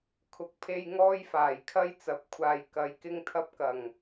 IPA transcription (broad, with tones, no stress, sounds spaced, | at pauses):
kʰ ʊ˨˥ k̚ pʰ e˧ j ŋ ɔː˥ j f aː˨˩ j kʰ ɐ˥ j t͡s ɐ˨˥ p̚ kʷʰ aː˨ j k ɐ˨˧ j k ɪ˥ ŋ t̪ʰ ɐ˥ p̚ k ɐ˨˩ ŋ